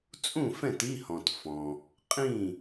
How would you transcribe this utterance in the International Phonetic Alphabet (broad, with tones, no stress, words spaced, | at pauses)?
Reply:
t͡sʼũ˥˨fɛ̃˥˨t i˧˥˧hɔ̃˨tfɔ̃˨ | qʼĩ˥˨